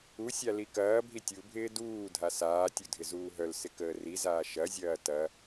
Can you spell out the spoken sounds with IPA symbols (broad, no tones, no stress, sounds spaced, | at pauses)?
u sʲ a l i k ɐː bʱ i tʲ u bʱ ɪː d uː dʱ a s aː tʲ u dʱ ɪ z uː ɦ œ l s ɪ k əː r i z aː ʃ ɐ zʲ ɐː t ɐ